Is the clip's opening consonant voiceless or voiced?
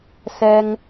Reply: voiceless